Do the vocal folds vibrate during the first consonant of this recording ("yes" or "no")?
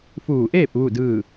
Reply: no